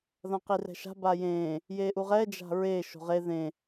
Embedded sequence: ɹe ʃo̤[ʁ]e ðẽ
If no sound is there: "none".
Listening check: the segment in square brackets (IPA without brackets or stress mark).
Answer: ʁ